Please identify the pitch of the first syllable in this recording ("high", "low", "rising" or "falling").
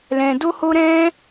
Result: low